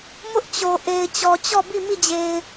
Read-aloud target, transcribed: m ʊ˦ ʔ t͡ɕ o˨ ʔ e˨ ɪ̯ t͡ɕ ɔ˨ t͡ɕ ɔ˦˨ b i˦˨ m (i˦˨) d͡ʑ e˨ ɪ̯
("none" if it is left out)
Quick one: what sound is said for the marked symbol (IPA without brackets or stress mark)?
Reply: i˦˨